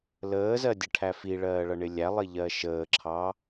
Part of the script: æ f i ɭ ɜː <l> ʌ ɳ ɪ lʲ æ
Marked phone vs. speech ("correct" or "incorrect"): incorrect